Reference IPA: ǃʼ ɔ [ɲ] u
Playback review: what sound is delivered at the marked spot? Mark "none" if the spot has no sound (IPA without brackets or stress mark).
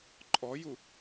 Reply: j